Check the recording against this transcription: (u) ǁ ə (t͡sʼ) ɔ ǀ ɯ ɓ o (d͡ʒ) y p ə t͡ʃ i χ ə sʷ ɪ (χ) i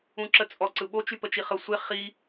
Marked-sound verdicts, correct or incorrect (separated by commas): incorrect, correct, incorrect, correct